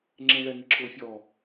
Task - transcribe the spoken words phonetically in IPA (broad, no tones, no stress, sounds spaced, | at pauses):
ŋ͡ǁ ẽ ɭ ɛ ŋ i ǁ ʊː fʲ ɔ